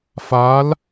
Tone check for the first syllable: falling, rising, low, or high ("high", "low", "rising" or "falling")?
rising